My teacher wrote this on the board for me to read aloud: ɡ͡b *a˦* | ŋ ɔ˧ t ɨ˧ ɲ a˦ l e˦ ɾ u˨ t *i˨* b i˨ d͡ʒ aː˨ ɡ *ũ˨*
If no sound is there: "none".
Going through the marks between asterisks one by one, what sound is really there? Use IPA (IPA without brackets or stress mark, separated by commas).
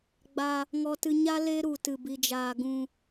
a˧, ɨ˨, ũ˨